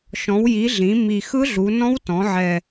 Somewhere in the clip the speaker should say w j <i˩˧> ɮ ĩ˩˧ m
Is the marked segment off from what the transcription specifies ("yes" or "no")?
no